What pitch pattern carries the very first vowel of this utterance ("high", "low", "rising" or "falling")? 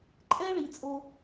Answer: high